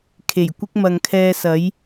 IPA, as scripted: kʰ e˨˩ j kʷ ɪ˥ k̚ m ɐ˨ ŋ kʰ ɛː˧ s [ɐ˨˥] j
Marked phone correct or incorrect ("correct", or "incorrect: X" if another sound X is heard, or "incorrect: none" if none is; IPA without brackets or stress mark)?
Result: correct